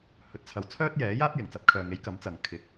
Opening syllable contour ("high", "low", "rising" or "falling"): low